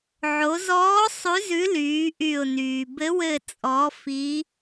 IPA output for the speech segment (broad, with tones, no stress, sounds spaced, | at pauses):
ʕ o˩˧ z ɔː˨˥ sˤ ʉ˨˥ z ʉ˨˥ l yː˩˧ ʔ y˧˩ ʊ̯ n yː˩ b ɘ˨˥ w ɘ˧˩ t͡sʼ ɔ˩˧ f i˨˥